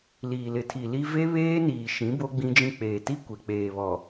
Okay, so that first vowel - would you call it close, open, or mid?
close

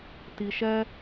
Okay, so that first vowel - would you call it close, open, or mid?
close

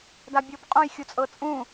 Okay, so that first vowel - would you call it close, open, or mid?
open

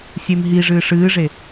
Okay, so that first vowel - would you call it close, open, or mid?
mid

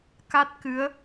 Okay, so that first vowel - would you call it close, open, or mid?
open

